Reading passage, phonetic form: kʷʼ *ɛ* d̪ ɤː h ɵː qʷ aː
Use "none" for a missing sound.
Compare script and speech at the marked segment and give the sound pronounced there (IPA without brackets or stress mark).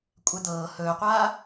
ɛ